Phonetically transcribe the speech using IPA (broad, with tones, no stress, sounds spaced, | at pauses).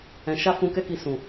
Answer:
ɛ̃˨ ʃ a˧ f ũ˧ k ɛ˦ k i˧ s ũ˨